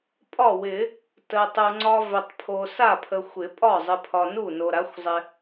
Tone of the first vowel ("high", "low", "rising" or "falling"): falling